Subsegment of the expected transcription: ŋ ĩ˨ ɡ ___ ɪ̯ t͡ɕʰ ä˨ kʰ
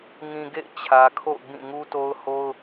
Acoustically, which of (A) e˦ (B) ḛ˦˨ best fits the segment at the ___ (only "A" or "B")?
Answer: B